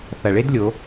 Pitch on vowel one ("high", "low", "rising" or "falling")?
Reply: low